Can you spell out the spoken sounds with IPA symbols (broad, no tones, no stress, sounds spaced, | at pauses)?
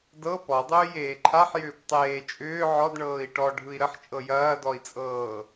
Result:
d ɤ p ɔ dˤ ʏː j eː ǃʰ a ħ j ʏː p tˤ eː t͡ʃʼ ʏː ʕ ɔ d ɳ ɤː i̯ ʈ ɔ ɖʱ ɯ i̯ ɾ ə ħ t͡ʃʼ ɤ j ɐː d ɔ i̯ t͡sʼ ɤː